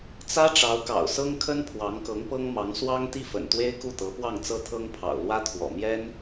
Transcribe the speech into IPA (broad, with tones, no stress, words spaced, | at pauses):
t͡sä˥ ʈ͡ʂɑ˧˥ʊ̯kɑ̰˨˩ʊ̯ sɤ˥ŋkʰə˥n pʰwɑ˧˥ŋkɤ˧˥ŋpɤ˥ŋmɑ˧˥ŋ swɑ˥ŋt̪i˥˩fə̰˨˩nt̪we˥ɪ̯ ku˥˩t̪ɤ˧˥ pwɑ˥˩ŋt͡sɤ˥t̪ʰɤ˥ŋ pʰɑ̰˨˩ʊ̯lwä˥t̪ʰwɔ̰˨˩ mjɛ˥n